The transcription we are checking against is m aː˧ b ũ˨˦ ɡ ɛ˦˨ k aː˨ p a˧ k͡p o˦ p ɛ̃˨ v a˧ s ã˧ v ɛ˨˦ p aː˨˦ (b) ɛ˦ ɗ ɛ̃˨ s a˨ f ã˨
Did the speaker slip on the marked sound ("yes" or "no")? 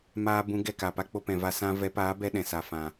no